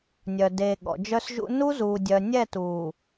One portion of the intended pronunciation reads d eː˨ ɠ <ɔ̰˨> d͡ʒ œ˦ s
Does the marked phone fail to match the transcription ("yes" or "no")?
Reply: no